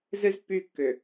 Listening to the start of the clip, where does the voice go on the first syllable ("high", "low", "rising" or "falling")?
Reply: high